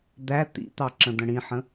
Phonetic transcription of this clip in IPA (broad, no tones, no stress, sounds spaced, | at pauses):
d̪ æ t̪ ḭ t̪ ɑ ǁ ə̃ d̪ ə̃ ɽ ĩ ħ ə̃